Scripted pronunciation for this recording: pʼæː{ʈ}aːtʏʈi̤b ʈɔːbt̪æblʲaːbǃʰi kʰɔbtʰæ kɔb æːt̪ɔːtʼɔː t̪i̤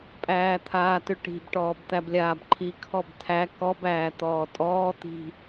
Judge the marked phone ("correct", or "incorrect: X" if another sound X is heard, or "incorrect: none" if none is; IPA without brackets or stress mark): incorrect: t̪ʰ